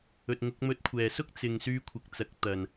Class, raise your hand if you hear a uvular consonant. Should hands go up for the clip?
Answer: no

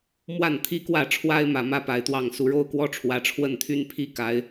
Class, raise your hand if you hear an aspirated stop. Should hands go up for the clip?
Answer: yes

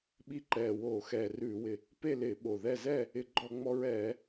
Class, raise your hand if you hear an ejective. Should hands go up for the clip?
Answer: no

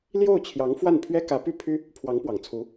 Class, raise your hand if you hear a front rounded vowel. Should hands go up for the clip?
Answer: yes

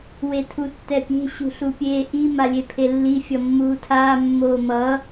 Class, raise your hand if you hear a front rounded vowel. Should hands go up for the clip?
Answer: no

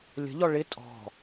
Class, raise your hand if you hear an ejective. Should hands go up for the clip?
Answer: yes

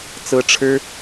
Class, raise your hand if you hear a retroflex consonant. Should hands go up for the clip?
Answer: yes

